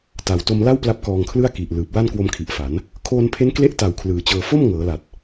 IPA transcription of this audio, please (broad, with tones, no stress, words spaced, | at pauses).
ta˩˦wto˧mla˥˩wpla˦˥p̚ kɔː˧ŋkʰlɯ˥˩a̯ki˨˩ʔlɯː˨˩p̚ wa˥˩nkwo˧mkʰi˨˩ʔ fa˩˦n | kʰoː˧npʰe˦˥n kle˦˥ʔta˨˩w kʰlɯː˨˩t͡ɕɤː˧ fo˥˩m ŋɤː˩˦la˨˩t̚